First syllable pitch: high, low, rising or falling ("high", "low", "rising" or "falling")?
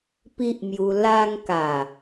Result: high